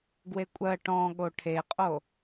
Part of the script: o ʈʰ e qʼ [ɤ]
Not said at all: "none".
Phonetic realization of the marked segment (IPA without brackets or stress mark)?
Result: o